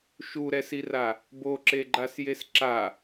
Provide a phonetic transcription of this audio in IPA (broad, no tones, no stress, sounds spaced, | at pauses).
ʃ u ɾ ɛ s i r a | b o ǁ e ɡ͡ǃ a s j e s ǁ a